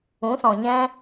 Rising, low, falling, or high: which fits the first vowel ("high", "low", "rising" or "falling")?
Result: rising